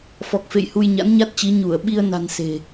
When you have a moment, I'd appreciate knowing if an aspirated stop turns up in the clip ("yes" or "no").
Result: no